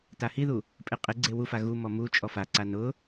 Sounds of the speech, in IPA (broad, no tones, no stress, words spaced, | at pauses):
tahiðu | pʼeqʼɪɡ͡ǀe wufa ɣumɔ mu t͡ʃʼɔfaǀa nʊ